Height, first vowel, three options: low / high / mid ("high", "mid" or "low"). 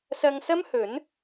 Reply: low